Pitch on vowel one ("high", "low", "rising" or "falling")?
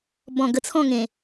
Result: low